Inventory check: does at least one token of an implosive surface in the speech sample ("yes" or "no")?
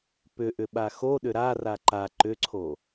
yes